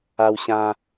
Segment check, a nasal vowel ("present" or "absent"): present